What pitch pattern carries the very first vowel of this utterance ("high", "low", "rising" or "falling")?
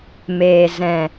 low